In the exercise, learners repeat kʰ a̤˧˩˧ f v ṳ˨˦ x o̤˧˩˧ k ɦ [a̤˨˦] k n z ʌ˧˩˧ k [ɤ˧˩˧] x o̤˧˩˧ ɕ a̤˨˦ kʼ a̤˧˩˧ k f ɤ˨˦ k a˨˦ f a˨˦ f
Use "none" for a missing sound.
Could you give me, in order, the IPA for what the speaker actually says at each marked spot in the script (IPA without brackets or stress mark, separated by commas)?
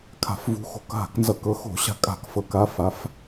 a̤˧˩˧, ɤ˨˦